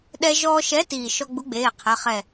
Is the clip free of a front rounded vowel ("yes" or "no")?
yes